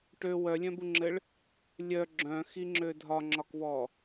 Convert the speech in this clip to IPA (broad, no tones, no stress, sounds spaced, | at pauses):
ʈ ø w œ lʲ œ̃ b u ŋ͡ǁ ɘ ɭ | lʲ œ ɡ͡ǁ œ̃ x i ŋ͡ǁ ø dʱ ɒ ŋ͡ǁ ɒ k v ɔ